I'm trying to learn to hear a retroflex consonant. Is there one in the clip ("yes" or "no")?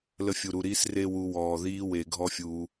no